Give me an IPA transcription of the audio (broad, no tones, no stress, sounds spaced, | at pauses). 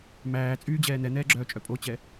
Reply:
m æː t͡sʼ yː d͡ʑ ɛː n̪ ɛ n̪ ɛː ɡ͡ǁ œː t͡ʃʼ œ pʼ o t͡ɕ ɛ